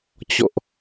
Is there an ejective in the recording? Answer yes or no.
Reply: no